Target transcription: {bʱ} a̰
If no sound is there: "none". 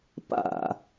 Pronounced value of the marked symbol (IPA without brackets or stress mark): p